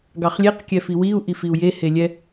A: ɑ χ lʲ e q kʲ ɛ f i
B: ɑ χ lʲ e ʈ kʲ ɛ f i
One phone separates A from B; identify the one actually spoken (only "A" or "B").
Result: A